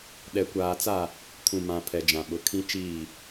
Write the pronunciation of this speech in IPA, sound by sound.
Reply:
ɗ ɛ˨ kʷ aː˨ t͡s a˦˨ | kʰ ũ˨ m ã˨ pʰ ɛ˨ d͡ʒ ã˨ ɓ ʊ˨ kʰ ĩ˦ t͡ʃ iː˦˨

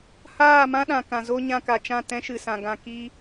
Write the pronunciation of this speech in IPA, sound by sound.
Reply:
h aː˦˨ m ã˦ ɗ ã˨ k ã˨ z o˦ ɲ ã˧ k a˨ t͡ʃ ã˦˨ t ɛ̃˦ ʃ ɨ˨ s ã˨ ɡ ã˧ k i˦

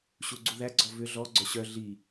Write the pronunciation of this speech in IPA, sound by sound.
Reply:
ɕ u ɡ͡ǀ u ð æ ɡ͡ǀ ɔ v ʏ ɮ ɔ ɡ͡ǀ œ ɕ œ ɮ i

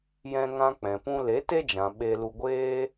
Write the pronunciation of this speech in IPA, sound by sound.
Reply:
j ɛ̃˧ ŋ ã˧ k͡p ɛ̃˨ p ũ˧ l e˨˦ t e˦ d͡ʒ ã˨ ɓ e˧ l u˧ ɡʷ eː˦

